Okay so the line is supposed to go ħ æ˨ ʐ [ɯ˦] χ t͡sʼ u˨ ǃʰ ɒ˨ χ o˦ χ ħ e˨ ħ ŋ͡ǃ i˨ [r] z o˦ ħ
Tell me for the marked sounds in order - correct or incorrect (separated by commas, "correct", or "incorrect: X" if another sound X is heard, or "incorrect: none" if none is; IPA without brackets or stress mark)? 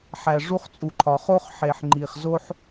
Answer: incorrect: u˦, incorrect: χ